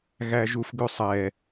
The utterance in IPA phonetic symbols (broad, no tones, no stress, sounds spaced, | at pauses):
ɣ æ ʒ u f ɡ ʉ sˤ ɛ